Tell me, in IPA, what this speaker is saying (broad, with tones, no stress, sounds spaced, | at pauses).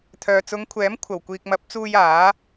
t̪ʰ œː˨ t͡s ʊ˨˧ ŋ kʷʰ ɛː˨˥ m kʷʰ ɐ˨˩ w kʷ iː˨ k̚ m ɐ˨˥ p̚ t͡s uː˧ j aː˨˥